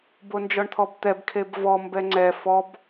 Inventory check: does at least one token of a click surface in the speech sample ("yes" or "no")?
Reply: yes